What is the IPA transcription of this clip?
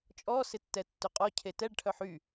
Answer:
t͡ʃʼ ɔ s ɪ tː ɛ tː ʏ qʼ ɔ cʰ e t ɛ ɖ ʈʰ œ ħ y

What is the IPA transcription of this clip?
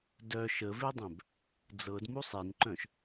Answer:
d œ ʃ ə v e dˤ œ̃ b | d͡z ɤ d m u sˤ e n ǃ œ̃ ʃ

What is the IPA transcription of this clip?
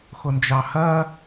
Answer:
x ʊ n d͡ʒ ɑ h ɜ

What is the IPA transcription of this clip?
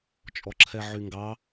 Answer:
t͡ʃʼ ɔ ǁʰ ɛ ʕ y ŋ ɡ ɑ

